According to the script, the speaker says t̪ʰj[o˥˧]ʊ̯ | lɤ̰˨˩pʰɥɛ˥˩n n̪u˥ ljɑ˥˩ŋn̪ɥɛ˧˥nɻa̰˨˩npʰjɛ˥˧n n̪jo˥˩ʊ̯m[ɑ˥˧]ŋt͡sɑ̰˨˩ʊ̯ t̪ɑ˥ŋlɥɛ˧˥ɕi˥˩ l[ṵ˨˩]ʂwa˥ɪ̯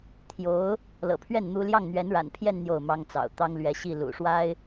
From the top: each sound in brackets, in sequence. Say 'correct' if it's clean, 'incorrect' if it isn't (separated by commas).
incorrect, incorrect, correct